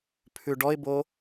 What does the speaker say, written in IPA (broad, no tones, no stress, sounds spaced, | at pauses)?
pʰ ʉ ɖ ɔ ɪ̯ b o